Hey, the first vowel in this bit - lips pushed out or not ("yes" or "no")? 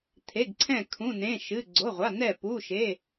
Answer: no